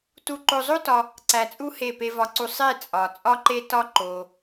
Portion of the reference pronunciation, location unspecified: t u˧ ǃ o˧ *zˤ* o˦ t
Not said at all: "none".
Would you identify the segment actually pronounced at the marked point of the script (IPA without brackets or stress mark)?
zˤ